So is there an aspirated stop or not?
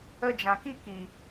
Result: no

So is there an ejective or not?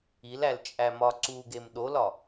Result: yes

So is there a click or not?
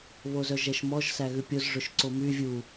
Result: yes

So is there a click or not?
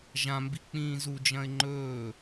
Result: yes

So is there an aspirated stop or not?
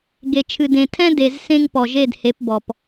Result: yes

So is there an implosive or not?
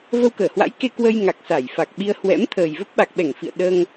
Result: yes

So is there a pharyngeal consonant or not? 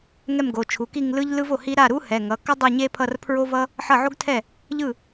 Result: yes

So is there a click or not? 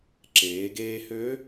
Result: yes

